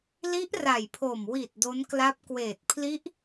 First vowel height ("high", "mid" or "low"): high